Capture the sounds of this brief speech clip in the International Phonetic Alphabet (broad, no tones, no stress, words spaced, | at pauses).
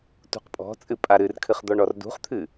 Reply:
tṳqpʼɔ̤t͡sʼɨ pʼaɾɨrkʰɨχ d̪ɔɳɔrdṳχt̪ʰɨ